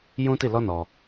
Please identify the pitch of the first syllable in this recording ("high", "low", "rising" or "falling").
high